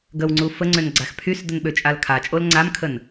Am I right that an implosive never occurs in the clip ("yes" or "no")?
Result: no